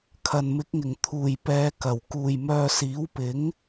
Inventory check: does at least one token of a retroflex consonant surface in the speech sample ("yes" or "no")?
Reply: no